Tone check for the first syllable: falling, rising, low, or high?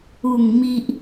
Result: low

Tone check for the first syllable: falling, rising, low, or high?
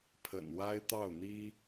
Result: low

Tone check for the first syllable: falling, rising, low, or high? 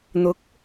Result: rising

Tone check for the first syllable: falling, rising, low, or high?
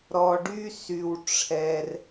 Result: low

